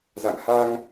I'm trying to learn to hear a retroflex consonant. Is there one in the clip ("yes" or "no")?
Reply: no